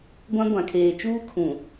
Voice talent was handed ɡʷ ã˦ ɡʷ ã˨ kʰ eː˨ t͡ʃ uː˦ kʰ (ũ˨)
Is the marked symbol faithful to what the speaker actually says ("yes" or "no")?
yes